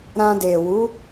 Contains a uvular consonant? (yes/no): no